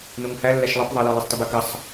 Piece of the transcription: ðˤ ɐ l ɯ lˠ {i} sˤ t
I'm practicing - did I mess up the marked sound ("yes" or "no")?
no